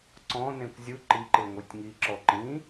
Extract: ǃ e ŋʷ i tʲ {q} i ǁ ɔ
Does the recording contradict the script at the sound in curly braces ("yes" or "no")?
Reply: yes